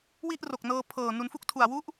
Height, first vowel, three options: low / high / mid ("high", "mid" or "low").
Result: high